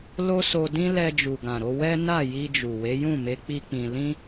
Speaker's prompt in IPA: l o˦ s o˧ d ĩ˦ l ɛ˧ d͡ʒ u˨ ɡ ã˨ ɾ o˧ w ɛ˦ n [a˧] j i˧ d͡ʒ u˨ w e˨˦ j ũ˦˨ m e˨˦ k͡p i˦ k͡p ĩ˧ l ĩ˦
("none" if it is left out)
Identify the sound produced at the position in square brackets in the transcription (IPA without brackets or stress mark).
a˦˨